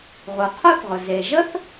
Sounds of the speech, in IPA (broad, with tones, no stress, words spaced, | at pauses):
ʁu˩qʰo˥θʁʊ˩ ze˩ ʒə˥θ